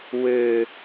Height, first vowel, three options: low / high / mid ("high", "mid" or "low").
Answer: mid